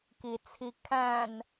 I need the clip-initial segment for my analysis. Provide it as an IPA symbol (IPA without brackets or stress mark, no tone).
k